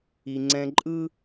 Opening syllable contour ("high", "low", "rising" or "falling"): low